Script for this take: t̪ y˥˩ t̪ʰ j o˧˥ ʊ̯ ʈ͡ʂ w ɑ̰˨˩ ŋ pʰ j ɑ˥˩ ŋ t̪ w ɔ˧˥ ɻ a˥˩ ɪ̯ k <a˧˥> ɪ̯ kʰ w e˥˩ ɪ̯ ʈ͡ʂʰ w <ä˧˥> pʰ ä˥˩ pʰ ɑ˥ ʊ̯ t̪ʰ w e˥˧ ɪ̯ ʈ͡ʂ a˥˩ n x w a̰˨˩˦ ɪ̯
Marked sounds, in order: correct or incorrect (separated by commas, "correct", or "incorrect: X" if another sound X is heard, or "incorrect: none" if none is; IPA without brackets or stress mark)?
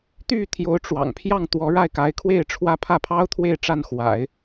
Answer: correct, incorrect: ä˥